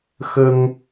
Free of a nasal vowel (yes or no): yes